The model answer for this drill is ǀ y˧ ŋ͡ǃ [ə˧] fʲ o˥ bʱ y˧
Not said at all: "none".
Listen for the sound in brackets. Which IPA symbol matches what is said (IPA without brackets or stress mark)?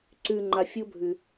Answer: a˧